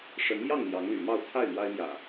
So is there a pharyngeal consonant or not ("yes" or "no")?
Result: no